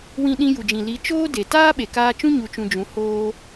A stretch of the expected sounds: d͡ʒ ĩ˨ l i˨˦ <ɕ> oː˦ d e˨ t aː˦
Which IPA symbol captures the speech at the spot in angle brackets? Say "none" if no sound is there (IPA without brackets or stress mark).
t͡ʃ